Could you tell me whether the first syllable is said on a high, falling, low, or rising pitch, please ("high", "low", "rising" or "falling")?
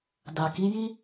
low